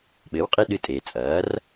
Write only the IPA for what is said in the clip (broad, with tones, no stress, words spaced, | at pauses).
ɓɘː˩˥wqʼi˧ ɗɨ˧tʼeː˩ t͡sʼɐː˩˥r